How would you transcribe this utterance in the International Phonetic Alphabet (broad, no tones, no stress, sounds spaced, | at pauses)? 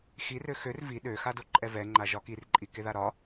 x i r ø x ø r v i ɗ ø x a d o ǃʼ ɛ v ɛ ŋ͡ǃ a ʒ ɒ k i r ǃʼ i k e ð a ɾ ɒ